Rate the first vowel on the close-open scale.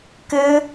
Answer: close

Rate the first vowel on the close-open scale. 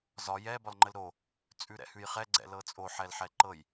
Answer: open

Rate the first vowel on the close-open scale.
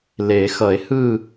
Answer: mid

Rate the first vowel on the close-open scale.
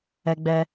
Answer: mid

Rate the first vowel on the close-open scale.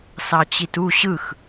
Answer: open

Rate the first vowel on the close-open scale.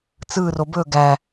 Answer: close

